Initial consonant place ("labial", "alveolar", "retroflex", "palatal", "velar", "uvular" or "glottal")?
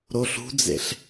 alveolar